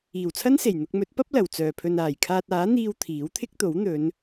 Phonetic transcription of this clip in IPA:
iː˨˩wt͡sʰɐ˥nse˨˩j n̪ʊ˧k̚mɵ˨˥t̚pɐ˥p̚ lɐ˨˩w t͡sœː˨˩pʰɵ˨n aː˨˩jkʰaː˧t̚ aː˨˥n̪iː˧w t̪ʰiː˨˥wt̪ʰɪ˥k̚t̪o˨˥w n̪ɵ˨˧n

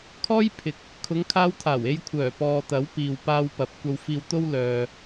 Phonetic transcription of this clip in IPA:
kʰɔː˥jpʰɪ˨k̚ | kʰʊ˨˧ŋkʰaː˧wt̪ʰaː˨˩w e˧jkʷʰœː˨˩pɔː˨ t̪ɐ˨˥w piː˨wpaː˧wpɐ˨˥p̚ kʷɐ˧wfiː˧wt̪o˥wlœː˨

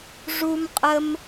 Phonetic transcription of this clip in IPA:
ʐu˦mqʼə˦m

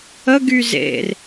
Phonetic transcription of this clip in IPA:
əɡy zḛr

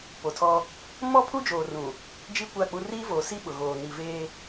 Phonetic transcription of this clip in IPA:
po˨tʰɔ˦ | mɔ˦pʰu˦d͡ʒoː˨ rũ˨ | d͡ʒi˦ kʷa˦˨k͡pu˦ riː˦voː˨si˦ ɓʊ˨ ɣoː˨ ni˨veː˦

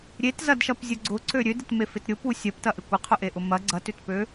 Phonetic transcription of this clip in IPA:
ɾʲetzɐdʃɐpzʲʊ ɡ͡ǀʊǀø ɾʲødɪtmefɪt ɾʲʊpu sʲɐptɐʔɪ kʷɪqʰʊʔeʔʊ mɐ ɡ͡ǀɐtʏtpø

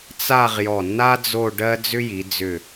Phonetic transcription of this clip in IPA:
t͡sa˥˧ʁjɔ˧˩nːa˥ d͡zo˥˧ɖɜ˥ d͡zʏ˥ji˩˧d͡zʏ˧˩

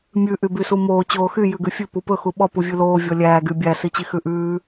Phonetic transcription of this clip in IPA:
mʲʉ ʔybysumoː t͡ɕoːxy jʉɡʉfʲʉ pupɵ xuɓɔ puvʲʉloː vʲɔlʲæː ɡybʲæ sit͡ɕixʉʔʉː

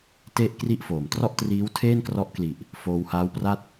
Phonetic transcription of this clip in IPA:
te˥˩ʔkri˥˩ʔfo˩˦m trɔ˥˩ʔtriː˦˥w tʰeː˥˩nkrɔ˦˥ʔkli˨˩ʔ | foː˧whaː˦˥wpra˥˩t̚

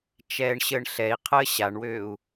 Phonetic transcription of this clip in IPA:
t͡ʃɛːɳɕəːɳɬɛi̯ qʰəːɕaɳwøːu̯

